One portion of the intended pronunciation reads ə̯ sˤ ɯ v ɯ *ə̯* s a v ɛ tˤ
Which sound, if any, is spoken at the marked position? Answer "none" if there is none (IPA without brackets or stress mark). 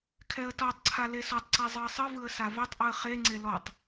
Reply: ə̯